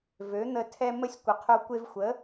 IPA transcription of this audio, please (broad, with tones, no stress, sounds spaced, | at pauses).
v ø˨˦ n̪ ə˧ tʰ ɛ˧ m ə˧ sʲ kʷ ə˨ qʰ o˧ kʷ e˧ v xʷ ə˨˦